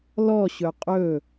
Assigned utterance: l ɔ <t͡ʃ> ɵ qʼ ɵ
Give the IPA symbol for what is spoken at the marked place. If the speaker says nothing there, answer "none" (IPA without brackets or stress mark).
ɕ